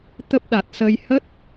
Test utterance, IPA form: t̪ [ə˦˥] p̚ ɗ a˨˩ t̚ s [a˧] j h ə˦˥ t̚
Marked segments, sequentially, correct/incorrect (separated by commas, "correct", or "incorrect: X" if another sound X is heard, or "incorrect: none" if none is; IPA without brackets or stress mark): correct, incorrect: ə˧